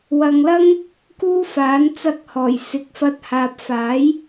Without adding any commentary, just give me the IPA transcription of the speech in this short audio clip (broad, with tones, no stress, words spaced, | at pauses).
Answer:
wɐ˨ŋlɐ˥ŋ | kuː˥faː˨˥n t͡sɐ˧k̚hɔː˨˩jsɪ˨˥k̚ fɐ˨˥t̚haː˨p̚faː˨˥j